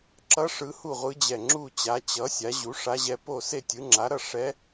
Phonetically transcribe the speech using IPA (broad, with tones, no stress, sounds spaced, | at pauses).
ǁ ʌ˧˥ ʂ ɯ˧˥ h u˥˨ ʁʷ ɯ˧˥ d͡ʑ ɛ˧˩ ŋ͡ǁ u˥˨ t͡ɕ a˩˥ t͡ɕ ʌ˩˥ sʲ a˩˥ ʑ u˩˥ ʂ a˧˥ ʑ ɛ˧˥ p o˥˨ s e˥˨ tʲ ɯ˩˥ ŋ͡ǁ a˩˥ ɾ ʌ˥˨ ʂ ɛ˧˥